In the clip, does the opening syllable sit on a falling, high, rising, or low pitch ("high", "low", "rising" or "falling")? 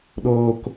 low